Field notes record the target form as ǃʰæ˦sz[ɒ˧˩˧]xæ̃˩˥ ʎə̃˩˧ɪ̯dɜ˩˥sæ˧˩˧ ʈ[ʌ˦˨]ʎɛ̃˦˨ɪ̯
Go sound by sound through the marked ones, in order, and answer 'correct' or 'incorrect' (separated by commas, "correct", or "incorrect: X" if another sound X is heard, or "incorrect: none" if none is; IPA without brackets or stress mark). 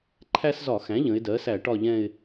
correct, incorrect: ɒ˦˨